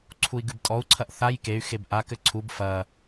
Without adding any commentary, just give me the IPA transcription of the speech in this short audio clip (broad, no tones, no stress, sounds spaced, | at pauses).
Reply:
ǀʰ u i̯ ɡ ɨ b tʼ ɔ u̯ ǀʰ ɐ ʔ θ a j k e y̯ x e b ʔ a k ɘ ǀʰ u b f ɐ